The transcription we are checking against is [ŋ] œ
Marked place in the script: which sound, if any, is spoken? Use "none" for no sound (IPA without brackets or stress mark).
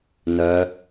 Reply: n